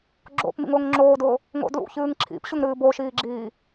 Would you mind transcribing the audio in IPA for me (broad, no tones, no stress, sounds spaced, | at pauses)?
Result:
ɡ͡ǁ o̰ p m ḭ ŋ ʊː ŋ ŋ͡ǁ oː d ʊː | ŋ o̰ d l ṵ ç ɨː ŋ ǁʰ ḭ p ɕ ʊ ŋ ɾ ɨː b o ʃ iː ɡ͡ǁ iː